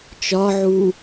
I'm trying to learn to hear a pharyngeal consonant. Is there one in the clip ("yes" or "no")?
yes